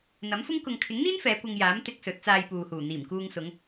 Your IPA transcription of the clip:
n̪ ɐ˨˥ m f ʊ˥ ŋ k ʊ˨ ŋ kʰ ɪ˨˥ ŋ n̪ iː˥ n f ɛː˨˧ kʷ ɐ˧ ŋ j aː˨˥ m t̪ ɪ˧ k̚ s ɵ˨˥ t̚ t͡s aː˧ j p uː˨ h uː˨˩ n̪ iː˨˩ m k uː˧ ŋ s ʊ˨˧ ŋ

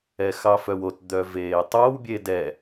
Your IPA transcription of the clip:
ɛ x ɑ f œ w o t d̪ œ v eː tˤ o w bʲ e d ɛ

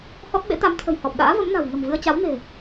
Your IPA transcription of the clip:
h ɔ˦˥ t̚ ɓ ḛ˧˥ t̪ a˨˦ m t̪ʰ ə̤˨˩ j h ɔ˨˩ p̚ ɗ a̰ː˧˥ v ə˨˦ m n a̤˨˩ w ŋ ə̤˨˩ m v ɨ˧ ə̯ t͡ɕ a˨˦ w n e̤˨˩

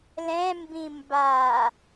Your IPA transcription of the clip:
l ɛ̃ m b ĩ m b a

